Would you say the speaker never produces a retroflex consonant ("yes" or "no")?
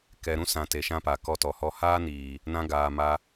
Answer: yes